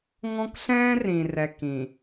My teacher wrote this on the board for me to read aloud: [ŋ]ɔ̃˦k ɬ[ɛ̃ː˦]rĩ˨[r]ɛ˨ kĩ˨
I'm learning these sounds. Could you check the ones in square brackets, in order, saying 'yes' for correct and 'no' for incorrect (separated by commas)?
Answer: yes, yes, yes